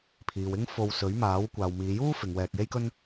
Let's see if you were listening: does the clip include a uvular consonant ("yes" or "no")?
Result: no